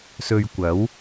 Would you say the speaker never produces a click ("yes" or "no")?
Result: yes